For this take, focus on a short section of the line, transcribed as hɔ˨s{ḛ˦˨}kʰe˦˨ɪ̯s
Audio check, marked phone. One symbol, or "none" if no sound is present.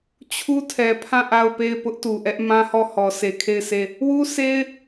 e˨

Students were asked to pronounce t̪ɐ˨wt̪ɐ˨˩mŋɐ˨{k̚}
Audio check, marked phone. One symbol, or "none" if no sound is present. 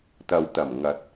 t̚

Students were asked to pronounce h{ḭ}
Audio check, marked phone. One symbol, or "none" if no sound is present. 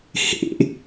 ḛ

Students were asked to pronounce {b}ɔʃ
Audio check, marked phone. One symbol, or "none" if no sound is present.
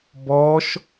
b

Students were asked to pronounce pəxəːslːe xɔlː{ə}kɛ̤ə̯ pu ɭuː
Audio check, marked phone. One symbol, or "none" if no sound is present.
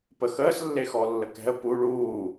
ə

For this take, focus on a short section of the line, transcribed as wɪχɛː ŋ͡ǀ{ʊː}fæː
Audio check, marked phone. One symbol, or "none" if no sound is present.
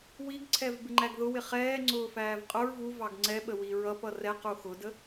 ʊː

